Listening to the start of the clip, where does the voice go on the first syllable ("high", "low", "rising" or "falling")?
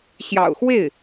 low